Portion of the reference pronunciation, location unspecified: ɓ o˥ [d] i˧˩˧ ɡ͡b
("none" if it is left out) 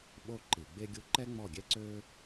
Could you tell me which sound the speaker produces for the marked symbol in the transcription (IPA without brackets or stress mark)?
ǃ